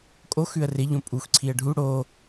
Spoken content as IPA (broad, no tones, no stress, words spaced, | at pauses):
kʼox ʉə̯rɪʎõ pʼuxǀʰiə̯ ɖʱu ɽo